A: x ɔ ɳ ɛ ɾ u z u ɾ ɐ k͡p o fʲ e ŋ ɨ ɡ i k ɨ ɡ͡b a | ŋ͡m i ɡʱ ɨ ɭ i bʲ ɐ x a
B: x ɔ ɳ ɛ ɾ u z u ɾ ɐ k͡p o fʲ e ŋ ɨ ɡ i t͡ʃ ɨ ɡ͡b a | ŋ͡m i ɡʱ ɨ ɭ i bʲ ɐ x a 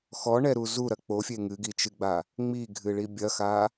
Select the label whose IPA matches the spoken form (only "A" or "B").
B